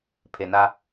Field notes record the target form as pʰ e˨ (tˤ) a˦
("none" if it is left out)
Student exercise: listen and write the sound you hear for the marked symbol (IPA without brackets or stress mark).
n